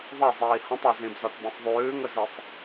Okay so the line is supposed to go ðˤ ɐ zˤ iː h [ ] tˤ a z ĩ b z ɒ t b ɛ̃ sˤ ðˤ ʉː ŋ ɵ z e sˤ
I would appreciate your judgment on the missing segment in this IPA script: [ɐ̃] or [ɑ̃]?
ɐ̃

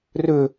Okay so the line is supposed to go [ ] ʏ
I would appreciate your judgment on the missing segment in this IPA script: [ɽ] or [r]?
r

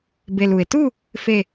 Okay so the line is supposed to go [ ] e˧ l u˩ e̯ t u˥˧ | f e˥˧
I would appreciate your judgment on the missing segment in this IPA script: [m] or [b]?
b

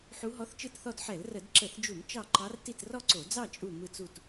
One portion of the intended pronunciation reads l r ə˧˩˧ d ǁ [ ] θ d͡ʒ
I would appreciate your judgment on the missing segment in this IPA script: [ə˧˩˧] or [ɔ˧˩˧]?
ə˧˩˧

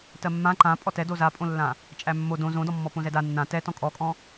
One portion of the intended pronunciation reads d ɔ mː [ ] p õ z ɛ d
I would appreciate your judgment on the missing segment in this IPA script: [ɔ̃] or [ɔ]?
ɔ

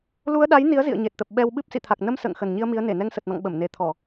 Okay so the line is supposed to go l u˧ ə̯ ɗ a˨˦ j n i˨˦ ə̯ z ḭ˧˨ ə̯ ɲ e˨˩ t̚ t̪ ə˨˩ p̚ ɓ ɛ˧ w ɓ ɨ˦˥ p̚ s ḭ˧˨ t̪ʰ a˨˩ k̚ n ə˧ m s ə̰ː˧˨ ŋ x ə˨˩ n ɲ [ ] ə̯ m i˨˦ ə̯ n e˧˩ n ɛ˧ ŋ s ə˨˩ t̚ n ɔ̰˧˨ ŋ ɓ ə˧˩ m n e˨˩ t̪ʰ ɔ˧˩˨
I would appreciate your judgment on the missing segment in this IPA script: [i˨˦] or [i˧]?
i˧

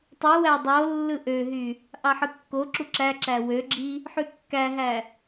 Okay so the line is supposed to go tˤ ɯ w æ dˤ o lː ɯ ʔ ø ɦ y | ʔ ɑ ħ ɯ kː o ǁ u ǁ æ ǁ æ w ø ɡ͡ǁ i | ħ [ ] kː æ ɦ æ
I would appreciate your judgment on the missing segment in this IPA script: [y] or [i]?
y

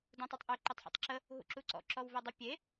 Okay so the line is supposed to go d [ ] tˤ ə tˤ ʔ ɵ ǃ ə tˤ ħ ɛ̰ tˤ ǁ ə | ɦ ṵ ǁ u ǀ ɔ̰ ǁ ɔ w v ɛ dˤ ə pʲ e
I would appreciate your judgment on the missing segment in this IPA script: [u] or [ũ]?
ũ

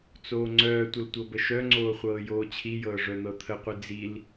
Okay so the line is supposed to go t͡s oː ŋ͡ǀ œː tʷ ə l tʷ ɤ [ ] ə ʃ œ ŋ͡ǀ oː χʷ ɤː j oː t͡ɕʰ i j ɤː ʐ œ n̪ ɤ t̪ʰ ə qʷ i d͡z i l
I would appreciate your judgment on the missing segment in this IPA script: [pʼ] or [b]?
b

